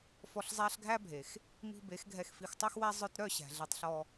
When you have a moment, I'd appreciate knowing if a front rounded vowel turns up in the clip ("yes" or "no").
yes